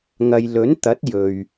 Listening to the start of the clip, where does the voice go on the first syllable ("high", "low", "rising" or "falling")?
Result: low